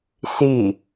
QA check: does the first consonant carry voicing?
no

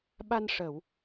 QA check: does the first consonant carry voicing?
yes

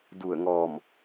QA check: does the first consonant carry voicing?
yes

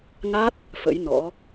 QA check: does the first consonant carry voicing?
yes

